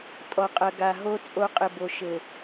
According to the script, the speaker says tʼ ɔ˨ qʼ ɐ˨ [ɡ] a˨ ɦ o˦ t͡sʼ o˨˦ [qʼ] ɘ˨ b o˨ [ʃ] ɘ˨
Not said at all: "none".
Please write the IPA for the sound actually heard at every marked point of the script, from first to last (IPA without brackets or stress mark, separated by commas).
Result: ɡ, qʼ, ʃ